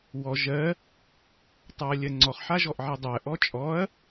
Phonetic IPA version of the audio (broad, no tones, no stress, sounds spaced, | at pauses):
w ɔ ʒ ɜ | tˤ a ɐ̯ lʲ ɜ ŋ͡ǀ ɔ χ ħ a ʒ ɔ ʔ ʕ i dˤ ɜ ʔ ɔ t͡ʃʼ ɔ ɐ̯